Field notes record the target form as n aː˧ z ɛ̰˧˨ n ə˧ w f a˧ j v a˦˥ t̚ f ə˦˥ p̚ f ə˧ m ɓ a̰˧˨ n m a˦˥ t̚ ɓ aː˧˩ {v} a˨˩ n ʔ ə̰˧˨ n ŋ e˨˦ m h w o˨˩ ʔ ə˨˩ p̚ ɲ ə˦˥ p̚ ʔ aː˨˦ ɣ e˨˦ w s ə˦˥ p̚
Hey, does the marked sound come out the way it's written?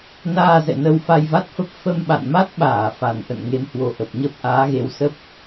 no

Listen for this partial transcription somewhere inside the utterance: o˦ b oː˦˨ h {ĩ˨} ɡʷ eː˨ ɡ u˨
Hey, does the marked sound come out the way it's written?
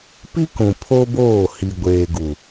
no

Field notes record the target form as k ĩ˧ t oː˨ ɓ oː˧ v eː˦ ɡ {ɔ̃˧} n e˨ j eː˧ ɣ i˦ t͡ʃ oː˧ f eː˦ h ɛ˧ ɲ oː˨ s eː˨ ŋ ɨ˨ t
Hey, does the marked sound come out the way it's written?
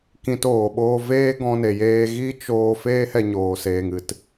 yes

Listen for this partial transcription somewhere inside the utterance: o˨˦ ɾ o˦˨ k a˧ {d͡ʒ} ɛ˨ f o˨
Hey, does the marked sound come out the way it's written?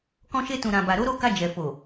yes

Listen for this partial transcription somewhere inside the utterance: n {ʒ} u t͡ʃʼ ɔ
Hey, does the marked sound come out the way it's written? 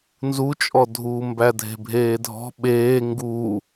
no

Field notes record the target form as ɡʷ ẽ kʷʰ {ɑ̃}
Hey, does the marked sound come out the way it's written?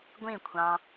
yes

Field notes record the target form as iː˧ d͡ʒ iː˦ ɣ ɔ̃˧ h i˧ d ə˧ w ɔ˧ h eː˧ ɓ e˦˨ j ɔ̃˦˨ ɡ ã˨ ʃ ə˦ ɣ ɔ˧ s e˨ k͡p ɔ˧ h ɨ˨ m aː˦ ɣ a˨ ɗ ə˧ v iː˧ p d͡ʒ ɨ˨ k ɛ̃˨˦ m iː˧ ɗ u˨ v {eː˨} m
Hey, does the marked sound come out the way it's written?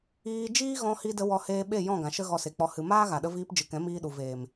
yes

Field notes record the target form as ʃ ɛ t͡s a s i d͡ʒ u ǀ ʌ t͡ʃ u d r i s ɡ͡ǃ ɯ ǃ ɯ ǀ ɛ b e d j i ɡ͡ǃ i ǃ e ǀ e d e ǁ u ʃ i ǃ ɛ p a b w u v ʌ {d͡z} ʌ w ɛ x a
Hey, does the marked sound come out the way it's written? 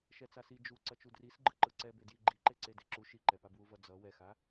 yes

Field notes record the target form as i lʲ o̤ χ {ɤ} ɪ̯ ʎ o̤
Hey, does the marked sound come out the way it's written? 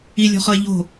yes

